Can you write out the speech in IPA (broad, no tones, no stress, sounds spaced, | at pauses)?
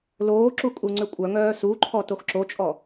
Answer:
l oː ǁ u kʼ u ŋ͡ǀ ø kʷʼ œ ŋ œː s u ǃʰ ɔ t o x ǁ o t͡ʃʼ ɔ